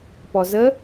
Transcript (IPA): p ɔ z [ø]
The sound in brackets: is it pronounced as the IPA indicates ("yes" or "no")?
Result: no